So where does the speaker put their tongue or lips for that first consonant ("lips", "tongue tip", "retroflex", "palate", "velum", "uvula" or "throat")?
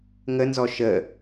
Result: velum